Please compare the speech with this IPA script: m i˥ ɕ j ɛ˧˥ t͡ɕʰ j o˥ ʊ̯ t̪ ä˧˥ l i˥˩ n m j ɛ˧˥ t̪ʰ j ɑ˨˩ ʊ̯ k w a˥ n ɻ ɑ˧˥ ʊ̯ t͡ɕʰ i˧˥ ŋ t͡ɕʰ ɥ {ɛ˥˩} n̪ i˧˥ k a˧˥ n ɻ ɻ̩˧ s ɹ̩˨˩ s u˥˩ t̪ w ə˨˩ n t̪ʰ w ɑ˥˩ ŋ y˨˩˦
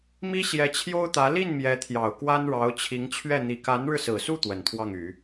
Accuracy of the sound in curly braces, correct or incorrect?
correct